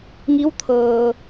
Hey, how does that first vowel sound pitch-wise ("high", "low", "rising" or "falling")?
rising